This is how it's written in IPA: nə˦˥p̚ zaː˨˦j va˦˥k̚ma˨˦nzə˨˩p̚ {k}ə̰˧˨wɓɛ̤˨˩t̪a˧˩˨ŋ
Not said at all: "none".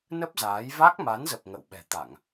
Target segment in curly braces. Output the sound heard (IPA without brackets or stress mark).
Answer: ŋ